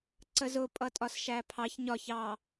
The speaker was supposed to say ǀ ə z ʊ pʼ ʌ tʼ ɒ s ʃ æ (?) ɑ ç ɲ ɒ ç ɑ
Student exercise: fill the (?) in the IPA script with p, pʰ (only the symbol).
pʰ